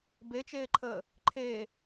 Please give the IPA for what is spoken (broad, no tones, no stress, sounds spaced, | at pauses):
b e t͡ʃ eː ǃʰ əː | ǃʰ e